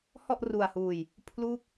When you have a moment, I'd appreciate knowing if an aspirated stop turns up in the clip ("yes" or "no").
yes